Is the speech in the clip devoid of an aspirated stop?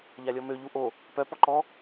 yes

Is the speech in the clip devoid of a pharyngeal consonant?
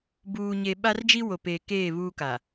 yes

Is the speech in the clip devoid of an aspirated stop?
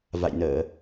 yes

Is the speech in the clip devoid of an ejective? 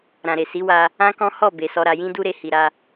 yes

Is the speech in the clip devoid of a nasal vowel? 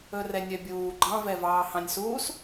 no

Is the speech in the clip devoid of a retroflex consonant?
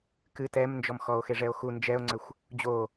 no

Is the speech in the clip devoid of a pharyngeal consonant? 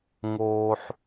no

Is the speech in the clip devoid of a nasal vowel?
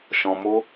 no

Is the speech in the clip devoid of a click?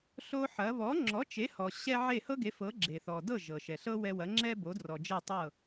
no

